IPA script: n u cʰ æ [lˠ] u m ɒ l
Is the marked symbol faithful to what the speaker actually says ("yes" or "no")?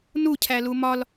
no